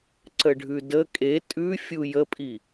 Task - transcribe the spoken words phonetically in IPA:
ǀ ə ɖʱ ʉ d ə kʼ e tʼ ʉ fʲ u j ə pʼ i

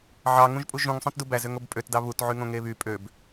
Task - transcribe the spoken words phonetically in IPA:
ʕ ɑ ŋ ũ ʒ pʼ u ʒ ũ ŋ sˤ õ t d u b æ z ø ŋ o b pʼ ø t d ɑ β u t ʕ y ŋ õ ŋ e β y pʼ ø b

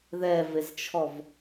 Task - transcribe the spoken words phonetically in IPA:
ð ɛ v e z t͡ʃʰ ɔ v

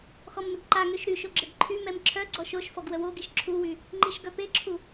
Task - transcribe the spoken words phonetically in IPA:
x ɔ m n ə ɡ ǃ a ŋ ø ʃ ɾ y ʃ o ɡ͡ǁ ə ɡ ǃʰ y m ɛ m ǁʰ œ ɡ͡ǀ ɔ ʃ o ʃ f ɔ ɡ w ə w o ɡ i ʃ ǁʰ u w y | ŋ͡ǃ i ʃ ɡ œ p e ǁʰ u

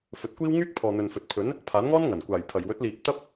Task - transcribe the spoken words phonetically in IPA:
f ɵ˨˥ t̚ kʷ iː˥ w ŋ yː˥ k̚ pʰ ɔː˨ n̪ ɵ˨ n f ɵ˨ t̚ pʰ ɵ˨˥ n | pʰ aː˨˥ n ŋ ɔː˥ n ŋ ɐ˨˩ n kʷ aː˨˩ j pʰ ɐ˨˩ j w ɵ˨˥ t̚ l iː˨ p̚ t̪ ɐ˥ p̚

